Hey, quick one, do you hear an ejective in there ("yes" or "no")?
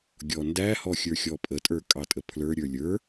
yes